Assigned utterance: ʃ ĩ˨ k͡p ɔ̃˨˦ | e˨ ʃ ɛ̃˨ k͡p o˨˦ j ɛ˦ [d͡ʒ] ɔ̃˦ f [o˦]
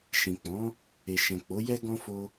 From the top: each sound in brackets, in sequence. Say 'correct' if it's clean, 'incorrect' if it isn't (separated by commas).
incorrect, correct